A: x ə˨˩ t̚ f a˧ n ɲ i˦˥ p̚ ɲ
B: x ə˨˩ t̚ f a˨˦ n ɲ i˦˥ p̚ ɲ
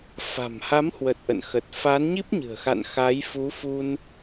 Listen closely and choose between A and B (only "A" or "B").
B